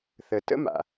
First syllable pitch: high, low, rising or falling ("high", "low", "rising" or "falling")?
low